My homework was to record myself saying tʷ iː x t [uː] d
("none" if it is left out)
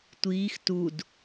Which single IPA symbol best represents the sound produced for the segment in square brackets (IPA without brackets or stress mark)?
u